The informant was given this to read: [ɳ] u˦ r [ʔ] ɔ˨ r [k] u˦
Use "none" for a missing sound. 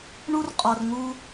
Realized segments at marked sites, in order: ɳ, qʼ, ŋ

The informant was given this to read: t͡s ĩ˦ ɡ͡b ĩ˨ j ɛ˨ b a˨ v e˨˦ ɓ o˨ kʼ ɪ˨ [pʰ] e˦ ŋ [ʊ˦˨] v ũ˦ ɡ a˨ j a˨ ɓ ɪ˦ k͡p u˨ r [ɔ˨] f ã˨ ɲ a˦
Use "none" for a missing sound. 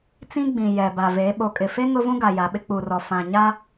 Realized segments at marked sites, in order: f, ʊ˦, ɔ˨

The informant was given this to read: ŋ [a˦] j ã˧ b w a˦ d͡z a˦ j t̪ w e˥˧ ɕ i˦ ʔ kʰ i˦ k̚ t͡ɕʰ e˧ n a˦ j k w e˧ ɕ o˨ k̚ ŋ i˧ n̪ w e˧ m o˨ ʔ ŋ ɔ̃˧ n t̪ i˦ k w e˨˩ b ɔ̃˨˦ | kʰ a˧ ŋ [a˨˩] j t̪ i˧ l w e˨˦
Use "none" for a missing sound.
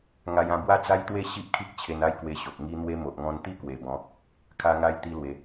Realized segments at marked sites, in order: a˧, a˧

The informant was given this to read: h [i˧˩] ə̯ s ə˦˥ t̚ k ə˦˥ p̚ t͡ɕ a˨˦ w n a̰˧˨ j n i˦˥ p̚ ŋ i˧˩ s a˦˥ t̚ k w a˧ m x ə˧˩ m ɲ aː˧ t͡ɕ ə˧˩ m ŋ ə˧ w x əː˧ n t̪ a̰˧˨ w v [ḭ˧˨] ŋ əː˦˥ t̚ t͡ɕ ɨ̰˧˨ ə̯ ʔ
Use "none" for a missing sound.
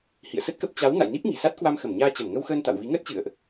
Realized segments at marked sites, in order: ḭ˧˨, i˨˦

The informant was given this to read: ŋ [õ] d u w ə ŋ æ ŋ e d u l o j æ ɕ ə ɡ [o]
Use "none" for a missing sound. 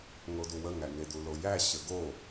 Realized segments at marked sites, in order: o, o

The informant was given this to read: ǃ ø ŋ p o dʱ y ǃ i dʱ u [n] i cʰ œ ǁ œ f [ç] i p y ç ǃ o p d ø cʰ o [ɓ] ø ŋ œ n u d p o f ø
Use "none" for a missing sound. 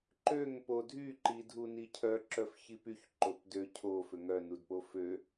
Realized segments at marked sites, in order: n, ç, f

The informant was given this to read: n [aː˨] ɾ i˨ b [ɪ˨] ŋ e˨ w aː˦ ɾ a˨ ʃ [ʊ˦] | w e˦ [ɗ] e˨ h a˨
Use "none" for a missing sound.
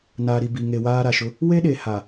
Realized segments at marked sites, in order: aː˨, i˨, ʊ˦, ɗ

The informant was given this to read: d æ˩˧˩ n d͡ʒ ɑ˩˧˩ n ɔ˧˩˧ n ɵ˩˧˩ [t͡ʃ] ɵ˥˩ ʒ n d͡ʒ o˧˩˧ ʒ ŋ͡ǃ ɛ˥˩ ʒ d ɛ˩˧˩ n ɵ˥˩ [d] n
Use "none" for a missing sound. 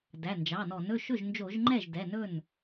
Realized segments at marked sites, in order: ʃ, none

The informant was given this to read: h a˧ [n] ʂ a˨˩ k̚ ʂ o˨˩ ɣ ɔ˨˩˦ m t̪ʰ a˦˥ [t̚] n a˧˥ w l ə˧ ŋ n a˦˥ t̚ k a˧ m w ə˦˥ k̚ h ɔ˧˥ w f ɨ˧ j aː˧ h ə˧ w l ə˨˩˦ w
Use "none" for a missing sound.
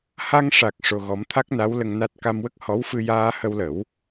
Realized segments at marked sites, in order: ŋ, k̚

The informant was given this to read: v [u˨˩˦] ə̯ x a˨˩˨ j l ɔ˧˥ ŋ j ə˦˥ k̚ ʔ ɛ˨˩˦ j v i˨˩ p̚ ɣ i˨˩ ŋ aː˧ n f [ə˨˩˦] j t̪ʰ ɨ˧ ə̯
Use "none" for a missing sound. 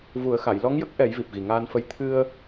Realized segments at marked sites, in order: u˨˩˦, ə˧˥

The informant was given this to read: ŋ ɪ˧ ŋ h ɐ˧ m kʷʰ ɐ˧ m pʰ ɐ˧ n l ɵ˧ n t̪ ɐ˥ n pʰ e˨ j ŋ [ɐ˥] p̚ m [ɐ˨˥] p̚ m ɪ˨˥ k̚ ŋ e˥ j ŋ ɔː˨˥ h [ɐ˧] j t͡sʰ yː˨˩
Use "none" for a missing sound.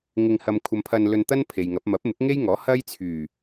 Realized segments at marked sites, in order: ɐ˨˥, ɐ˨˥, ɐ˥

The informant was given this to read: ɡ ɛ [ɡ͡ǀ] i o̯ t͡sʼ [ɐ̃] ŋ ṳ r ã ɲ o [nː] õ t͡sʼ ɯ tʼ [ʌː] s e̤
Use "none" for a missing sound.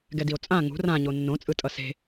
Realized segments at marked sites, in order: d, ã, nː, ʌ

